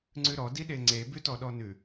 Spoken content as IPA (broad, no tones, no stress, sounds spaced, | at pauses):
ŋ͡ǀ ʉ ɾ ɔ d i ɗ e ŋ͡ǀ e b ʉ t ɔ ɗ ɔ n ʉ